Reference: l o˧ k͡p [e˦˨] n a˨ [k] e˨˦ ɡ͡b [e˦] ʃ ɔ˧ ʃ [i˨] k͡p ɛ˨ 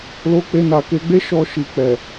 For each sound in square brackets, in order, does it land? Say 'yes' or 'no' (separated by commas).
no, yes, yes, yes